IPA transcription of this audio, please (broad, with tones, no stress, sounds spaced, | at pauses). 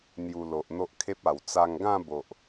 n̪ j u˧ l o˨ ʔ n̪ o˦ ʔ kʰ e˦ p̚ a˨˩ w t͡s a˧ ŋ ɡ ã˥˧ b o˨ ʔ